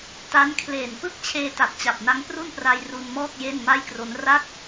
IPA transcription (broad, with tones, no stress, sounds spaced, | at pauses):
t a˦˥ n kʰ l eː˨˩ n p ɯ˥˩ k̚ t͡ɕʰ eː˧ t a˨˩ t̚ t͡ɕ a˨˩ p̚ n a˦˥ ŋ p r u˥˩ n p r a˧ j r u˧ n m ɔː˥˩ k̚ j e˥˩ n m a˥˩ j k r o˦˥ n r a˥˩ k̚